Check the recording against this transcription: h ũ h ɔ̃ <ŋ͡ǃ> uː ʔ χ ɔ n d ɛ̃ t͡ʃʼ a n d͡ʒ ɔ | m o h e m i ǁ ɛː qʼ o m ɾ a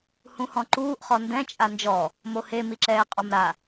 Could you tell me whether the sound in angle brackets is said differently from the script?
yes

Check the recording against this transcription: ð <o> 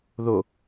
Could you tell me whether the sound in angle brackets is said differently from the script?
no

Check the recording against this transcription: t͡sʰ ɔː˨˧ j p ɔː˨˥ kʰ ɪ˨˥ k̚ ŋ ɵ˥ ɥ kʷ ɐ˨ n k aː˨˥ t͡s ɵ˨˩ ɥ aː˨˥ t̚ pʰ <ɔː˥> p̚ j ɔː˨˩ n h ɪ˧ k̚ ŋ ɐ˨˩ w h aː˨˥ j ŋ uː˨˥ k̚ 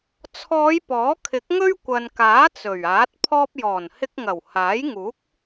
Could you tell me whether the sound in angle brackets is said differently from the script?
no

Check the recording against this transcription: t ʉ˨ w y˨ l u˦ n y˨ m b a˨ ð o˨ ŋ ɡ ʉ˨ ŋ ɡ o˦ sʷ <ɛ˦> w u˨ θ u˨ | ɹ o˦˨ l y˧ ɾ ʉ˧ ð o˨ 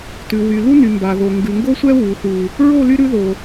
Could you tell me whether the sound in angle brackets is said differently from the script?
no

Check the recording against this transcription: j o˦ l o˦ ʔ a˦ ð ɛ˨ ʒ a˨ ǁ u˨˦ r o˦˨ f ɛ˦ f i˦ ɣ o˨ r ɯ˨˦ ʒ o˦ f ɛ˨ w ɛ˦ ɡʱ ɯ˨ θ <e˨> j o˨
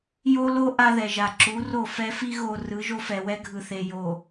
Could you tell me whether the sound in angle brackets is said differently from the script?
no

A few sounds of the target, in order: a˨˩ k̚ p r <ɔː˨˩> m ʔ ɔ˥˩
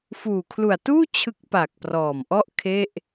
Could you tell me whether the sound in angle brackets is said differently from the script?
no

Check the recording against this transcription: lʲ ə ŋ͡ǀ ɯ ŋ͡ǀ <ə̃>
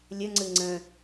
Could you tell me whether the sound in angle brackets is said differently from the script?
no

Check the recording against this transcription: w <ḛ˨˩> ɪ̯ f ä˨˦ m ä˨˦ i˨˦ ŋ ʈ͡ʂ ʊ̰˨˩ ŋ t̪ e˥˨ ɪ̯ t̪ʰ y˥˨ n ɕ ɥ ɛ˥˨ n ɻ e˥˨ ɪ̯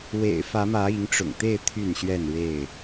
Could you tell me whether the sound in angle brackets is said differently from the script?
no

